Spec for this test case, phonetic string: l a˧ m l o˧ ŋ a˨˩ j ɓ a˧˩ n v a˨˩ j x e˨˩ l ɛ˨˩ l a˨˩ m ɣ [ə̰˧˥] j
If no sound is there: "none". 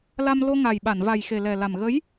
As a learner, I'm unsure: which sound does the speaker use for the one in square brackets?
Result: ə˨˦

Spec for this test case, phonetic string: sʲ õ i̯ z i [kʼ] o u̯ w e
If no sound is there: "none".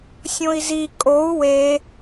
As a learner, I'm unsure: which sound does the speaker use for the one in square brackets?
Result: kʼ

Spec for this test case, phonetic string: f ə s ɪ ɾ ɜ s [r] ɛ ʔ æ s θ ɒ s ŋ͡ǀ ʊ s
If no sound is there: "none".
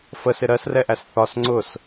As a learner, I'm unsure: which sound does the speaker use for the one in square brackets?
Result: r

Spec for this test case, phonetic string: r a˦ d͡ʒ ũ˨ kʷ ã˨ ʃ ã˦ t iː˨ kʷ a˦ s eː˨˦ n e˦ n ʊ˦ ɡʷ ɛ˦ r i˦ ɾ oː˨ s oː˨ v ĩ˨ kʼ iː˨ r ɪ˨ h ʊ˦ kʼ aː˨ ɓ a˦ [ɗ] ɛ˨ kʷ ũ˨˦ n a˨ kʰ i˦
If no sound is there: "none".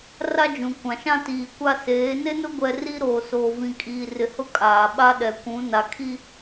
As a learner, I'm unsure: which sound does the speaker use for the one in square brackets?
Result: ɗ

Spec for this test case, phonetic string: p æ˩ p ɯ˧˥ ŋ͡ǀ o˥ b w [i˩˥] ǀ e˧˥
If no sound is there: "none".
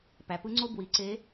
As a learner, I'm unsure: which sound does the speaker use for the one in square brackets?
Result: i˩˥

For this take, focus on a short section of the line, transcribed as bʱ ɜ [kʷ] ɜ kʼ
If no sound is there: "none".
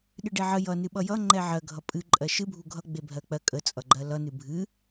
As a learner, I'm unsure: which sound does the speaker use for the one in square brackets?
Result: k͡p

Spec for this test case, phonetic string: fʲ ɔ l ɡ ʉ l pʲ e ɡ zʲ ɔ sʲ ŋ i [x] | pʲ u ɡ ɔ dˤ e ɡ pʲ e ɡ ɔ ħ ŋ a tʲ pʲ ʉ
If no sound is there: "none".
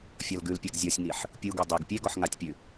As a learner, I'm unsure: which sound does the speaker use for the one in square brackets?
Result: ħ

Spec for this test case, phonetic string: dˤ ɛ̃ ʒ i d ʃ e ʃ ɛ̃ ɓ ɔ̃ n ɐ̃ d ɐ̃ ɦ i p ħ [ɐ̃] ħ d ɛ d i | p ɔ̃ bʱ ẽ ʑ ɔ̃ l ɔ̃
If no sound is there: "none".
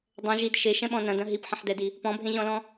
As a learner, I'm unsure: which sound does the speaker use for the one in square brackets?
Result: ə̃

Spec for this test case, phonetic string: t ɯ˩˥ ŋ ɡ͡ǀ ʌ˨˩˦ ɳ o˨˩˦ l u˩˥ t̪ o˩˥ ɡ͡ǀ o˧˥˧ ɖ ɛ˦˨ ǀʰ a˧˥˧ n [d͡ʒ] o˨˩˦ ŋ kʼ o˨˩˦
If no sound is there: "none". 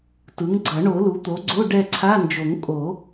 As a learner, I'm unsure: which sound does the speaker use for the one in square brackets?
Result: d͡ʒ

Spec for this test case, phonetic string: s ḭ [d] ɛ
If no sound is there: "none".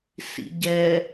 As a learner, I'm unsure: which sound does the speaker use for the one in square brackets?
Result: ɟ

